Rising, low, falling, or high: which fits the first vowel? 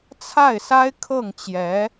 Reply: falling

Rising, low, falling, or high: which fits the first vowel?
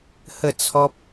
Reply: falling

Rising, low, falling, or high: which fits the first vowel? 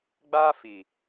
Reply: high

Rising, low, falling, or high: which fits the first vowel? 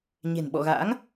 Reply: low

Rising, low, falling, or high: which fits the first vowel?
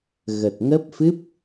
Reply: low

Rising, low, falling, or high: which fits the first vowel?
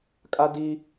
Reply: high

